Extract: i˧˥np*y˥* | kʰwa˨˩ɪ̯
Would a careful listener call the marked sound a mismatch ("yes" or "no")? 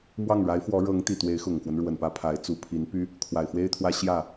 no